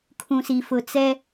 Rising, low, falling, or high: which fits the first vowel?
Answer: low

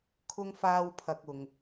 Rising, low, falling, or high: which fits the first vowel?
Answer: high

